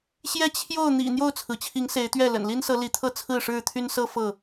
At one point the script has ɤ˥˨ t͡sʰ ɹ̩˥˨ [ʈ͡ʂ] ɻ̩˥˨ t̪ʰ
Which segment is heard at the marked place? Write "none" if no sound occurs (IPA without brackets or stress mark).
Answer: ʂ